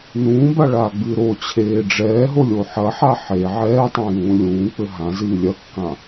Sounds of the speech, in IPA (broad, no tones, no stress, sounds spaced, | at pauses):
n ũː b a ɭ aː ɡ͡b ɨː ɾ o t͡ɕʰ eː ɖ͡ʐ ɛː ɦ o lʲ o ħ ɐ ħ a ħ e ʕ ɛː tˤ ã j ũː lʲ ũː k͡p ɘ ɦ ã z ɨː lʲ ɐ kː ã